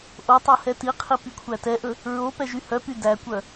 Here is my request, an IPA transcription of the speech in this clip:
ʔotˤo hɛtiqʰi pikʷʰætɛʔɵ | ɹo pɛʒyhœpy dækʷœ

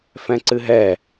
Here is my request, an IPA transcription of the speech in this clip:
fɛ̃ǀɨɦɛ

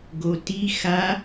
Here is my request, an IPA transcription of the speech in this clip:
ɡoti xa

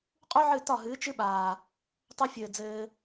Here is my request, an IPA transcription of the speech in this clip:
qʼu˦ʕɨ˦˨ tɒ˦˨ɦɨː˨˦t͡ʃɨ˦ɓaː˨ | tˤo˧fʲɘː˨ d͡zɘː˧

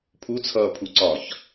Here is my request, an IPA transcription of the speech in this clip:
pʰut͡sʰʌːpʰuǀɒːç

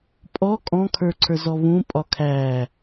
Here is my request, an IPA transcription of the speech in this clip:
pʼɔ kʼɔ̃kʰə˞ǀʰə˞ zɔβũ pʼɒkʰæ

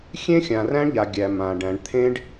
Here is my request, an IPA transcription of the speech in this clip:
xʲẽ˦xʲã˨ræ̃˦ɳʎa˨ ɡʲæ˨mã˨ɖæ̃˨ɳ t̪ʰẽ˦ɖ

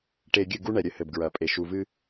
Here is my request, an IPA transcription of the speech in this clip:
ʈe˨ ɡʲɨ˦˨ɡu˦ɳɛ˨ɾʲɘ˦ hɘ˨bɡɹɐ˨pʼe˨ ʃu˨vɨ˦

